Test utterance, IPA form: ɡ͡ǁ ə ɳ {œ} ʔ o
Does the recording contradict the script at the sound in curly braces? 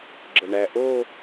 yes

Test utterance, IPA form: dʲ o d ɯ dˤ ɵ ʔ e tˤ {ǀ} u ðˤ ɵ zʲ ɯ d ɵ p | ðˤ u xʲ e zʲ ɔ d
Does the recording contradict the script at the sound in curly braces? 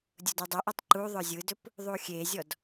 yes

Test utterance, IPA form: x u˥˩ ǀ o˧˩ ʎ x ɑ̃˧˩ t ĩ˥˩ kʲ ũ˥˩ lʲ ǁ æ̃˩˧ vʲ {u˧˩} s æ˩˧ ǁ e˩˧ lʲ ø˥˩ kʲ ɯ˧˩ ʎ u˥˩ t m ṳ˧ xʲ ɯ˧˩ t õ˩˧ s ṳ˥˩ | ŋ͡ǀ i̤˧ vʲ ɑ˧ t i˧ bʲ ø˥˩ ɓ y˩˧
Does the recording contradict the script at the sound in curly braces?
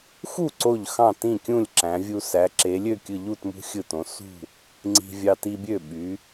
yes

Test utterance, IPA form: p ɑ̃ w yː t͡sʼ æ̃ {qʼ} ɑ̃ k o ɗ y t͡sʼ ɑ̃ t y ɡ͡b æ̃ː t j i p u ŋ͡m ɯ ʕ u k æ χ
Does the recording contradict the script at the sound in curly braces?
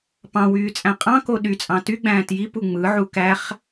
no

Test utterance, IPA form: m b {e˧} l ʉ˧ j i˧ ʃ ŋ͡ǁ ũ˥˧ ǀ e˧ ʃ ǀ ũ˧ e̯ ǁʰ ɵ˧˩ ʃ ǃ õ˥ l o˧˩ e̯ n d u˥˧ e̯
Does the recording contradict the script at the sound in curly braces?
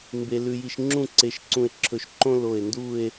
no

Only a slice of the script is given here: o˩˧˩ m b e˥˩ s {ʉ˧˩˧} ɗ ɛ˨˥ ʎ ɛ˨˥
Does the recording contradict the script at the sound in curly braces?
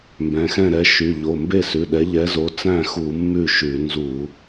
yes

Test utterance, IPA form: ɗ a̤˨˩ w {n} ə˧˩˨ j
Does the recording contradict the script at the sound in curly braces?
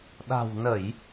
no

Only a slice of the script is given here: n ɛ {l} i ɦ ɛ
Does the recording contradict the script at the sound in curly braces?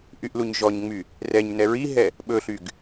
yes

